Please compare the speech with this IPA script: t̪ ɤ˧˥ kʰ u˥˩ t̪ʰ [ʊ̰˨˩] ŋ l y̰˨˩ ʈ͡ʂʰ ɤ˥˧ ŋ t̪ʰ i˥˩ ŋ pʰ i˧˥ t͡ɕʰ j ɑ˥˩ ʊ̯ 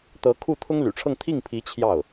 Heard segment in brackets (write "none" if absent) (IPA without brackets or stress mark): ʊ˥